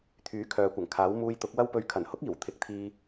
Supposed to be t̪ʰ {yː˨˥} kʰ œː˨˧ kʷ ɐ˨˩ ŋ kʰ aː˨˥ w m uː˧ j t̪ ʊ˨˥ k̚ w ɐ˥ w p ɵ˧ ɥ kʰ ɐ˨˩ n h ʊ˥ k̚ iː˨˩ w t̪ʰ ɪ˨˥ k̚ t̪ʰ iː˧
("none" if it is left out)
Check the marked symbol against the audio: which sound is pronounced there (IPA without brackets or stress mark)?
yː˨˥